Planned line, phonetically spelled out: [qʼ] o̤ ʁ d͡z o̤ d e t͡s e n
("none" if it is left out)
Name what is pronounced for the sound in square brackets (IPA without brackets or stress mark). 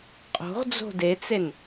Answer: qʼ